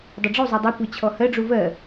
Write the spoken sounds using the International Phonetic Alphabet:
dˤ e ɖ͡ʐ u zˤ u dˤ e kʷ ɜ t͡ɕʰ ɔ h ɜ ɖ͡ʐ u v ɜ

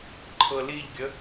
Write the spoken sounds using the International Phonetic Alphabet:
ǃʰ ɤ l i ʎ ɡʲ ə

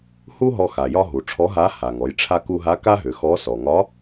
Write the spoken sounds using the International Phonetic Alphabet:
h u˥ ɦ ɔ˧ x a˩ j ɒ˧ ɦ u˩ ʈ͡ʂʰ ɔ˧˥ ɦ a˧˥ h a˩ ŋ ɔ˩˧ j ʈ͡ʂʰ a˧ k u˧ ɦ a˧˥ k a˥ ɦ ʏ˩˧ x ɔ˧˥ s ɔ˩ ŋ ɒ˧˥

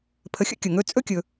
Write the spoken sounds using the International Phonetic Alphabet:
pʰ ə˧ xʲ ə̰˥˧ kʲ ə˧˩ ŋ ɵ˥˧ t͡sʼ ɵ˥ kʲ ɵ˧

